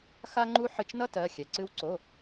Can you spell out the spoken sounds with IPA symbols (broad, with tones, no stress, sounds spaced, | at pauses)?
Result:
x a˥ ŋ͡ǃ u˥ ħ ɨ˧ t͡ʃ n ʌ˥ t ɜ˩˧˩ xʲ ɛ˩ ǀ ɨ˧ w ǀ o˩˧˩